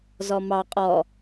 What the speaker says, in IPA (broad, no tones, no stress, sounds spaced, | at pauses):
z ɔ m ɑ qʼ ɔ